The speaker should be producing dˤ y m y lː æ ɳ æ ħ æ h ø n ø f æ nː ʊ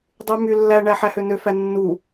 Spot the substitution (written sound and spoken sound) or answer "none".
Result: ʊ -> u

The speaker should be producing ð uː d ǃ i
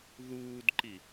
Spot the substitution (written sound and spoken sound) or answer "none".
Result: none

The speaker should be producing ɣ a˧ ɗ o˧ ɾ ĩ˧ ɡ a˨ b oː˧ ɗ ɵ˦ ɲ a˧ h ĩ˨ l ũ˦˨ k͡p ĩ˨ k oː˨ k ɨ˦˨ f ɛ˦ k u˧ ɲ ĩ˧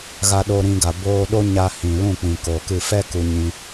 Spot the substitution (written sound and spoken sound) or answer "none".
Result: ɵ˦ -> o˦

